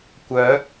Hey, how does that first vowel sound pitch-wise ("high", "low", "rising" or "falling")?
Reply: rising